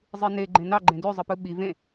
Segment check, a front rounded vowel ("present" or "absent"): present